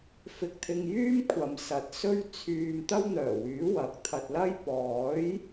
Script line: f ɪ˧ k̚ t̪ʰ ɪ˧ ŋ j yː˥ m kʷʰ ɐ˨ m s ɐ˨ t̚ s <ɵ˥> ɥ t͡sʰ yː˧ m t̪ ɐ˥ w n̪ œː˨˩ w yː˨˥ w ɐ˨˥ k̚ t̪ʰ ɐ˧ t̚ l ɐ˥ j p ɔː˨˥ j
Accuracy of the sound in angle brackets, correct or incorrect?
correct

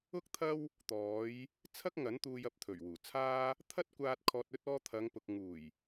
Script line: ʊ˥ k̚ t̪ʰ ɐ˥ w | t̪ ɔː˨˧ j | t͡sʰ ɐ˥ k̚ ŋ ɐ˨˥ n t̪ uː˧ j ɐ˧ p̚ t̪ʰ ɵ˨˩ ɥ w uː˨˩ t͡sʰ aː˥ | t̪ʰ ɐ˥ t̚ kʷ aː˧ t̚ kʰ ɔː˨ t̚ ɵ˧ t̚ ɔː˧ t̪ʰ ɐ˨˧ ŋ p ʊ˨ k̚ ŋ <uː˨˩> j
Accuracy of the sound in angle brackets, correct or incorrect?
correct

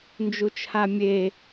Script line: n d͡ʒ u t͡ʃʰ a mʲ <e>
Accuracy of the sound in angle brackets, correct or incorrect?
correct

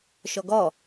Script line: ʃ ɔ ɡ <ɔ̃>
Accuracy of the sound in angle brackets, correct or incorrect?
incorrect: ɔ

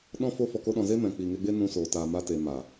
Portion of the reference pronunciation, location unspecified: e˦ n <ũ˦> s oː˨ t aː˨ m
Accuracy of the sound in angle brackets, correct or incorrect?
incorrect: ũ˧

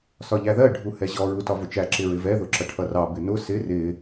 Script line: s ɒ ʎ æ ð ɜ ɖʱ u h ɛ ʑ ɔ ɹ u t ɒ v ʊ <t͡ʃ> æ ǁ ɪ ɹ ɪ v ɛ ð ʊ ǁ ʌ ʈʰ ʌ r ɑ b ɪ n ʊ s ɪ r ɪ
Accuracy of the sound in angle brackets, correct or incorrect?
correct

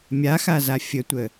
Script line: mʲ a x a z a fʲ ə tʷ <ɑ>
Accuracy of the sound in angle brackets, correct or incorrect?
incorrect: ə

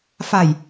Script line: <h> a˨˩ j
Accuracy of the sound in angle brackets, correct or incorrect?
incorrect: f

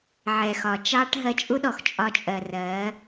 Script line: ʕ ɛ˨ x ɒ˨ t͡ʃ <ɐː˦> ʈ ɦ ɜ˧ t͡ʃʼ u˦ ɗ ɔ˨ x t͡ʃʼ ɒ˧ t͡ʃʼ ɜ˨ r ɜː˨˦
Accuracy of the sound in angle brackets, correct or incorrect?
incorrect: ɑː˦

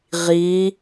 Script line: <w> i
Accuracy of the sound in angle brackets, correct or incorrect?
incorrect: ʁ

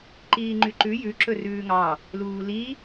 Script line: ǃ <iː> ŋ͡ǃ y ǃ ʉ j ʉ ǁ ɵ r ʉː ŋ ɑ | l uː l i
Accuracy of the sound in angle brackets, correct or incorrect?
correct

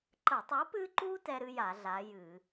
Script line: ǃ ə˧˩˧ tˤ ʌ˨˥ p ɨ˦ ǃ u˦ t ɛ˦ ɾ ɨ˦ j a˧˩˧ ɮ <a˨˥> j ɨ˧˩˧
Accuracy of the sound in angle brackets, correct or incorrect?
correct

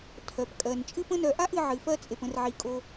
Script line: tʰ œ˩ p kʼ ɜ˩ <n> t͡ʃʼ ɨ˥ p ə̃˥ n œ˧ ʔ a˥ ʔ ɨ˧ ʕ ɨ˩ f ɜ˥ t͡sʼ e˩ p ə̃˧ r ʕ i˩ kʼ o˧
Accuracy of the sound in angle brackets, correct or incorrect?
correct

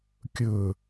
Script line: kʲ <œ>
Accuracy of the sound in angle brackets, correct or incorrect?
incorrect: ɵ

